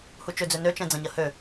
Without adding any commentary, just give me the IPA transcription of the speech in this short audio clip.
h u t͡ʃ ø d͡z ø n ø t͡ʃ ɛ̃ d͡z ɐ̃ ɲ ɐ h ø

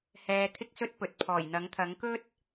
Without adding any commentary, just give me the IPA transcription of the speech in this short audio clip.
h ɛː˧ t̪ʰ ɪ˥ k̚ s ɵ˥ t̚ p ɵ˨ t̚ pʰ ɔː˨˩ j n̪ ɐ˨˥ ŋ t̪ʰ ɐ˨˥ ŋ k ɵ˥ t̚

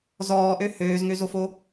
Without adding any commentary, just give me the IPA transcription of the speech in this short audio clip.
z ɔː ʔ ø h øː z ŋ ø z o f o

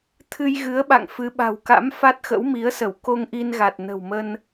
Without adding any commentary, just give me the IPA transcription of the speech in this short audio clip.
t̪ʰ ɨ˧ j ɣ ɨ˨˦ ə̯ ɓ a̰˧˨ ŋ f ɨ˨˦ ɓ a̤˨˩ w k a̰˧˥ m f a˦˥ t̚ x ə̰˧˥ w m i˨˦ ə̯ s ə˧˩ w k o˧ ŋ ʔ i˧ n ɣ a˨˩ t̚ n ə̤˨˩ w m ə˧ n

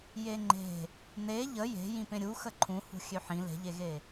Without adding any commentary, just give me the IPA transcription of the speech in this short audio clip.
j e ŋ͡ǃ e̤ | n e ʎ ə j e̤ j ĩ p ẽ ɾʲ u x ə ǃʰ ũ h ṳ xʲ ø ħ ĩ l e̤ ʎ e ɣ e

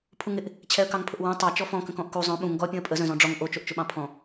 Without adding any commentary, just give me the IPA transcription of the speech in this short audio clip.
pʰ u ŋ ɪ ʔ | t͡ɕʰ ɛ ə̯ k ɑ ŋ pʰ ʊ ʔ w ɑ̃ tˤ ɑ t͡ʃ ɔ f ɔ̃ k ə̃ k ɔ̃ ʔ k u zˤ œ̃ ɓ ũ ŋ ɡ ɔ pʲ ũ ə̯ pʼ ə z œ̃ z ɔ̃ ɖ͡ʐ ɔ ŋ ʔ o t͡ʃ o ʔ t͡ʃ ʊ ɓ ɑ̃ pʰ ɔ̃

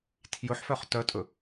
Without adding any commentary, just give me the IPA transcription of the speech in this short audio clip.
tʰ j ɵ ħ f œ χ t œ tʼ ɵ

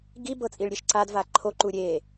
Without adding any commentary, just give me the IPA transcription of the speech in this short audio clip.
ɡ i b ɤ t͡sʼ i ɭ ɾʲ e ʃ ǀ a d v a ǃʰ o ǃ u ɾʲ e

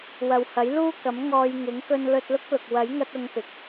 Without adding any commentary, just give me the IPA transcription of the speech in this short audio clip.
w ɐ˨ w h ɐ˨˥ j l uː˥ k ɐ˨˥ m ŋ ɔː˧ j ŋ ɪ˨˥ ŋ k ɵ˧ n l ɵ˧ t̚ l ʊ˥ k̚ l ʊ˨ k̚ w ɐ˨˥ j ŋ ɐ˧ t̚ ʊ˨˧ ŋ p ɪ˨˥ k̚

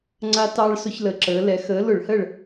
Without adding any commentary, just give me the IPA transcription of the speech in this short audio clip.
ŋ͡ǀ a˧ t ɑ˧ ɭ s ʊ˧ ç l ə˩˧ ǁ əː˩˧ l ɛ˩˧ x əː˨˥ l ʊ˧˩˧ ɭ h ə˥˨ ɭ

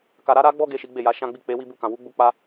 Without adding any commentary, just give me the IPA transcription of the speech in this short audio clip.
k a˦ ɾ a˦ ɾ a˦ ɡ͡b ɔ˦ ɡ e˦˨ ʃ i˨˦ ɡ͡b e˦˨ j a˨˦ ʃ ã˦ ɡ͡b i˦˨ k͡p e˨˦ w i˦ b u˦˨ k ã˨ w u˨˦ ɡ͡b u˦ k͡p a˦

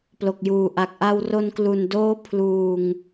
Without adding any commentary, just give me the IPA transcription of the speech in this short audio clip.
p l o˨˩ k̚ j uː˨˩ ʔ a˨˩ k̚ ʔ a˧ w r o˧ n k l u˨˩ n d oː˦˥ pʰ l uː˨˩ ŋ

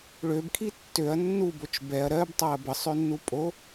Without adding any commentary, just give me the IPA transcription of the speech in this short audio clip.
ɭ ø b kʰ i tː ø ɐ̯ nː u b o t͡ʃ b ɛ ɐ̯ ɾ ɜ b tˤ a ɐ̯ b ə sˤ ø nː u pʼ o

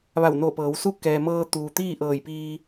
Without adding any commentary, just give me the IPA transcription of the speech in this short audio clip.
ʋ a˧˩ w n oː˧˩ p ɤː˩˧ w s u˥˨ k ɛː˩ m ɤː˧ t̪ uː˩ t̪ iː˥˨ ʔ ɤː˧˩ j p iː˧

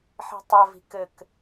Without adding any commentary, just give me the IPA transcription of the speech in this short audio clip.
ħ i̤ tˤ ɐ v i̤ k ɘ k

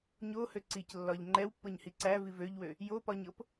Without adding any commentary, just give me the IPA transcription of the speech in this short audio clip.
ɲ o h ø ǀ i c lː ɒ ʎ ŋ͡ǃ ɛ w pː ɤ ɲ h i ǀ æ v i v ø ʎ w ø | j o p ɒ ɲ ɤ p

